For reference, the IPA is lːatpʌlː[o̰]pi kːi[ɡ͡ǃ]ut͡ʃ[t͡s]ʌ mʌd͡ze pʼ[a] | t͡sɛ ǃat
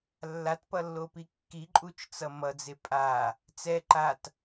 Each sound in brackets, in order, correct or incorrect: incorrect: o, incorrect: ǃʼ, correct, correct

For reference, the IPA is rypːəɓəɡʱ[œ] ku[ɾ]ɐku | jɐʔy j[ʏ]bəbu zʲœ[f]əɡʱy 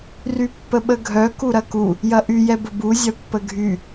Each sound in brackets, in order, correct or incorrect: correct, correct, incorrect: ɛ, incorrect: pː

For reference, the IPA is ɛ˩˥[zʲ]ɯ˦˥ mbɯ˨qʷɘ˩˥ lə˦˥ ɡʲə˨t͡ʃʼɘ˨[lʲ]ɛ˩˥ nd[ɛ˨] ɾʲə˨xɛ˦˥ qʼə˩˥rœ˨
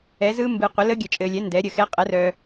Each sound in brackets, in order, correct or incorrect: incorrect: z, correct, incorrect: ɛ˩˥

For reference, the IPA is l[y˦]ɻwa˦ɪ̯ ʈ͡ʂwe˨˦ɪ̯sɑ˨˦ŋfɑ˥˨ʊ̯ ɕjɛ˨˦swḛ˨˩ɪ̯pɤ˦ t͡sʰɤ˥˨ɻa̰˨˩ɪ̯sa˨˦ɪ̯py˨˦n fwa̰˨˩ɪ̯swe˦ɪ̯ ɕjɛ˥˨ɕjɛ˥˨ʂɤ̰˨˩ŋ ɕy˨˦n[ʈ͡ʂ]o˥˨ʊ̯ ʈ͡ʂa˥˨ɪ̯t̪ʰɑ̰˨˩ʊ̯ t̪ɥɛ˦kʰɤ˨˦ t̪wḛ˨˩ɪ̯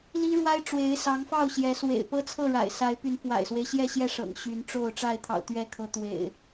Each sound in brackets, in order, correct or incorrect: incorrect: i˦, correct

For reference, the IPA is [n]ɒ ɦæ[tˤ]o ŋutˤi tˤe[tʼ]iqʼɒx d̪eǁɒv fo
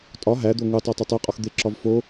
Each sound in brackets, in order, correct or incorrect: incorrect: tʼ, incorrect: d̪, incorrect: tˤ

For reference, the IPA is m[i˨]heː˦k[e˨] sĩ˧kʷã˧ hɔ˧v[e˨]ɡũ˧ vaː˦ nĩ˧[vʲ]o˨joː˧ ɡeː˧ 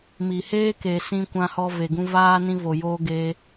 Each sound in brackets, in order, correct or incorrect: correct, correct, correct, incorrect: v

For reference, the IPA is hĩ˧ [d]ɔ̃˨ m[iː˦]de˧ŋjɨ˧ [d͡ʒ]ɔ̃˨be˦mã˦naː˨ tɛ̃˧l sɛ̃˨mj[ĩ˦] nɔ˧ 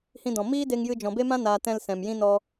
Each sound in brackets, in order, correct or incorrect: correct, correct, correct, correct

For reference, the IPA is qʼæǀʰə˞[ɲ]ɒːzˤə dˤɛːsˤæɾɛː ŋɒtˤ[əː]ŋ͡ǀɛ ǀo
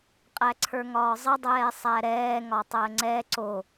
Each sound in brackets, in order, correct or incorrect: incorrect: ŋ, correct

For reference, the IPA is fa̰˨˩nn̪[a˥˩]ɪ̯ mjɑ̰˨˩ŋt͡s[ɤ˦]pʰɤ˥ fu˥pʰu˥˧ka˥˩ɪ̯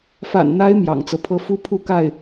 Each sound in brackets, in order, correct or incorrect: incorrect: a˧˥, correct

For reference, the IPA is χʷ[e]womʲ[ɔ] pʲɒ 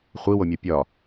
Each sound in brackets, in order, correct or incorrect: incorrect: i, correct

